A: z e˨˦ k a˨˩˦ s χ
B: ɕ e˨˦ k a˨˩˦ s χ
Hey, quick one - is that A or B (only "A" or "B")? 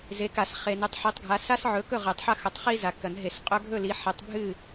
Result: A